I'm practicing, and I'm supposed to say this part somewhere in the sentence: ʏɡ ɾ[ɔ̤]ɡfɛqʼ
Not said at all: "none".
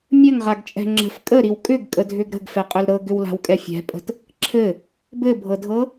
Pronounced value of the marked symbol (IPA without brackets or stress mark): ə̤